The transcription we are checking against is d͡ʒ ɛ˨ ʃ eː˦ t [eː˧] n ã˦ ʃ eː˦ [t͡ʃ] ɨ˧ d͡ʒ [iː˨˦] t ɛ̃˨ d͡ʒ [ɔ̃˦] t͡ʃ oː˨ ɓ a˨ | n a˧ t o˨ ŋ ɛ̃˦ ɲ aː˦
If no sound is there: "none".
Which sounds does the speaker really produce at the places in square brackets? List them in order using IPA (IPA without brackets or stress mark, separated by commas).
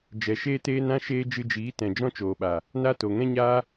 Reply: eː˦, d͡ʒ, iː˨˦, ɔ̃˦